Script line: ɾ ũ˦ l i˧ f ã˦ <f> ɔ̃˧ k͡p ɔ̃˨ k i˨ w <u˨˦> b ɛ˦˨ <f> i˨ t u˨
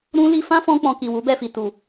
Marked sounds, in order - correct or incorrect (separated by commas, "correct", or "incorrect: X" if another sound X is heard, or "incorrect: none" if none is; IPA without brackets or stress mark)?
correct, correct, correct